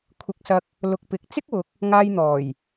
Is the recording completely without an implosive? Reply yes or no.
yes